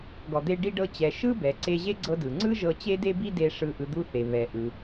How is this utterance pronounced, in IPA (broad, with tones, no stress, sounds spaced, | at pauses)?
ɡ ɔ˩ d̪ e˧ ɖ i˧ ɖ ɤ˧ t͡ɕ ɛ˩ ʃ ɯ˥ b ɛ˩ ǀ e˧ ʑ e˥ ɡ͡ǀ ɤ˧ d ɯ˩ ŋ͡ǀ ɯ˥ ʒ ɤ˧ t͡ɕ e˥ d e˥ b i˥ d e˧ ʂ ɯ˧ ʔ ɯ˧ d̪ u˥ θ e˩ β ɛ˩ ʔ ɯ˩